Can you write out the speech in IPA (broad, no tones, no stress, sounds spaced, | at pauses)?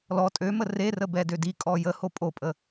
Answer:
l ɔ tʼ ø m ə r e r ə b ɛ d ø d i kʼ ɔ j ə h o pʼ o pʼ ə